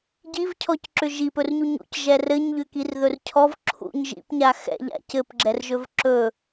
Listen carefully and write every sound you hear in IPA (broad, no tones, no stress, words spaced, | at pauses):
ɟivcʰɔcǁʏ ʒipɵrɲu ɲṵcʒɛ rɘɲʎʏkirðɵr cʰɔv ǁʰṵɲ ʒḭpɲa xɛ̰ʎa̰ cɘpɡ͡ǁɛrʒɵv ǁɵ